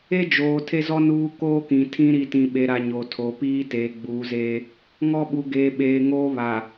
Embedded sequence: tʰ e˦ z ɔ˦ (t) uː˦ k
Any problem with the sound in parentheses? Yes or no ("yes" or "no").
yes